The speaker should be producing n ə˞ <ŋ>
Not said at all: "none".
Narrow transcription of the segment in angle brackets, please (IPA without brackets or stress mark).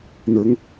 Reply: ŋ